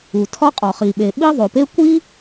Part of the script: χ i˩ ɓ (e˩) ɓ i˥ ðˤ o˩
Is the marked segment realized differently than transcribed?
no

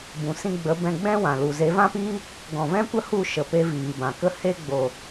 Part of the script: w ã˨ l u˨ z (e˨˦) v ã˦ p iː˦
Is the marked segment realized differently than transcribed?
no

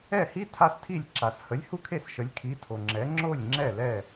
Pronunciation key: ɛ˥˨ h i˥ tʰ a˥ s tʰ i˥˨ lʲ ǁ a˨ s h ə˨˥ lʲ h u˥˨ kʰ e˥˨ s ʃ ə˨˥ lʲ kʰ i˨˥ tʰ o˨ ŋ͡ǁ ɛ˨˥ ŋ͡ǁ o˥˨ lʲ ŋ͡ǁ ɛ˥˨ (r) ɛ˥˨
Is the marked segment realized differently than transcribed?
yes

